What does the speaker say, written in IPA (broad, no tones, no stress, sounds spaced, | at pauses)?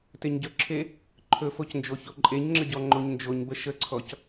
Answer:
t e ɲ ɟ ɵ ǁʰ e | ǃʰ ɵ f o c n d͡ʒ o ç o ǃʼ e ɲ ŋ͡ǁ ə ɟ ɔ ŋ͡ǃ o ɲ n d͡ʒ o ɲ b ə ʃ ə ǀʰ ɔ c